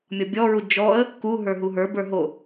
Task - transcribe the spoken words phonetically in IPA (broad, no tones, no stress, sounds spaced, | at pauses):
mʲ ɔ bʲ ɔ ɹ u d͡ʒ ɔ ə̯ | k u ɦ ə˞ ɦ u ɦ ə˞ b ə˞ ɦ o